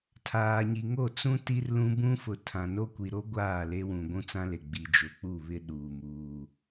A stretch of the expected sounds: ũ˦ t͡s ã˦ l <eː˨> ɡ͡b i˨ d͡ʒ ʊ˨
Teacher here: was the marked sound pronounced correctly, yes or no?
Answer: no